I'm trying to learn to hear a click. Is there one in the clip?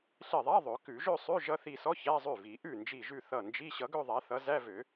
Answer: no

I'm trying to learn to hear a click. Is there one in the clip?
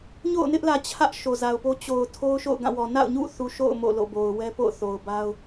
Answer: no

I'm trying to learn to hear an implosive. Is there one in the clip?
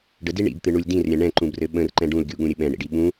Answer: yes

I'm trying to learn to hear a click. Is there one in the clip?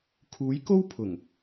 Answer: no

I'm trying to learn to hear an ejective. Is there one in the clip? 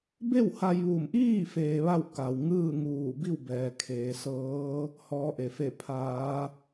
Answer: no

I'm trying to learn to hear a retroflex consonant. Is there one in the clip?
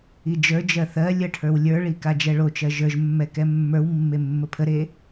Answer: yes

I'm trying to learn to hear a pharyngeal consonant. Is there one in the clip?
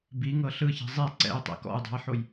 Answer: yes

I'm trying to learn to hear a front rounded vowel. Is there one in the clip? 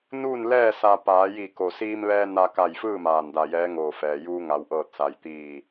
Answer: no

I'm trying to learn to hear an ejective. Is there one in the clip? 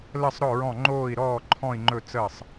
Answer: no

